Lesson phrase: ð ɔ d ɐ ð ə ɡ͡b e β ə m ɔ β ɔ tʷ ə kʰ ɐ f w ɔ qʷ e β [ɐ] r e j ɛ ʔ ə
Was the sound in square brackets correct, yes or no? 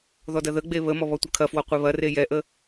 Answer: yes